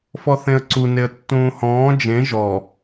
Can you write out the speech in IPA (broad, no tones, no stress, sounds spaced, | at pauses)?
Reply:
f ɔ θ ẽ ə̯ ǀ u n e ə̯ tː ũː h ɔ̃ː d͡ʒ ẽ ʒ ɔ